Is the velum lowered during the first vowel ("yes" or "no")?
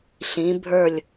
yes